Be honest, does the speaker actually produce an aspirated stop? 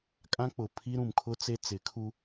yes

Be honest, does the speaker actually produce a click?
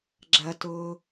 yes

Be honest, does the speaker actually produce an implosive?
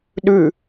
yes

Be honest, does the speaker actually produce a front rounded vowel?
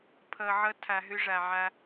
yes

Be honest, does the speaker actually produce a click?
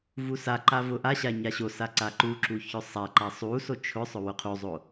yes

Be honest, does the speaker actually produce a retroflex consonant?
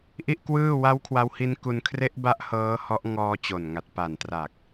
no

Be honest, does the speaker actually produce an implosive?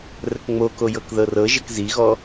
no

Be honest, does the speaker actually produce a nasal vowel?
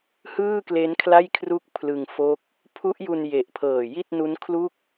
no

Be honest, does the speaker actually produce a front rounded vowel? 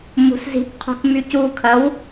yes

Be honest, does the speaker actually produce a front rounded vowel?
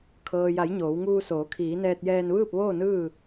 no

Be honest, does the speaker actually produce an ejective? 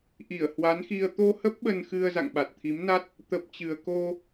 no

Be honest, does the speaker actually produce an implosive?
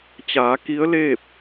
no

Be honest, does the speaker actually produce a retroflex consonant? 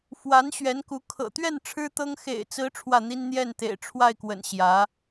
yes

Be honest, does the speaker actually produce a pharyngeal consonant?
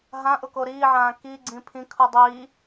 yes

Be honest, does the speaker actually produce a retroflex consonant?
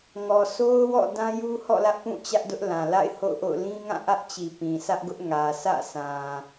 no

